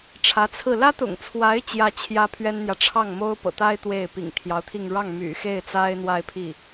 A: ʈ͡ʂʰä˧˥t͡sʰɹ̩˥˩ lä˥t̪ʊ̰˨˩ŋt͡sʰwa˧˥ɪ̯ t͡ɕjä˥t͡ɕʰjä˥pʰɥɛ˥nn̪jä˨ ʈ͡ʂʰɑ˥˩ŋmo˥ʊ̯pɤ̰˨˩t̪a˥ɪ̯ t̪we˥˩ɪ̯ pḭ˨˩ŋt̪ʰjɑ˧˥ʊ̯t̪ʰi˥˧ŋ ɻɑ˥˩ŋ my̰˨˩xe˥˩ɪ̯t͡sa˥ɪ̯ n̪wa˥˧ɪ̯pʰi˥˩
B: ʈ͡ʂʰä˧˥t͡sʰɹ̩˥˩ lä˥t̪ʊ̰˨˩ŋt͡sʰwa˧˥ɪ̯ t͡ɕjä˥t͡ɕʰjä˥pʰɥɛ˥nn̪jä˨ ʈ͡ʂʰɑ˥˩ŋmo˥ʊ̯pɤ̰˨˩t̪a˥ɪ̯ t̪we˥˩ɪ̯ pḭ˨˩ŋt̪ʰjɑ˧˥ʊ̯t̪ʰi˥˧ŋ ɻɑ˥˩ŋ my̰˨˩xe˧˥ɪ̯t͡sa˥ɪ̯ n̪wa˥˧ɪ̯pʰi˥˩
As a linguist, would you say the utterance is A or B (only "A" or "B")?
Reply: A